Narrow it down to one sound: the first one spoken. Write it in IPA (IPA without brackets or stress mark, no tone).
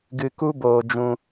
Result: ɡ